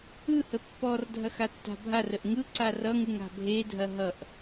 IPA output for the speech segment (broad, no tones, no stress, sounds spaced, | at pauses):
ɯ h ə pː ɔ r dʱ ɐ x a tː a̤ bʱ a r ə ʔ ŋ ɯ ǀ a r ʌ ŋ ɯ ŋ a̤ bʱ e dʱ ɐ ɦ ʌ ʔ